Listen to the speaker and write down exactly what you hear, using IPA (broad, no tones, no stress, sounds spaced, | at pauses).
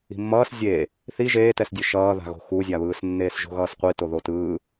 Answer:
i̤ mː ʌː s zʲ eː | θ i ʒ eː t ɛ s dʲ ɯ ʃ ʌː ð a̤ ɣ o̤ x u zʲ a β ɯː s nː eː s ʒ o̤ ɣ ʌː s qʷ i t o ð o t ɯː